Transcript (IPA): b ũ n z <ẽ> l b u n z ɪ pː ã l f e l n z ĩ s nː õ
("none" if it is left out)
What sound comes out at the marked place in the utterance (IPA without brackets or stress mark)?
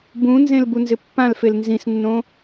ẽ